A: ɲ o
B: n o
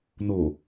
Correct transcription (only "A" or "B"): B